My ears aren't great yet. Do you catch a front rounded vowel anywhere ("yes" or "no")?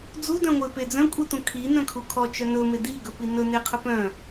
yes